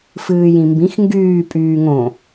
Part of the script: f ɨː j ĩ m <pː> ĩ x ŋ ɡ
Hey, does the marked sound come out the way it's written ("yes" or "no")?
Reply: no